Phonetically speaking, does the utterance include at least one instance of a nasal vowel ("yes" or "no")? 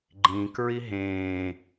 yes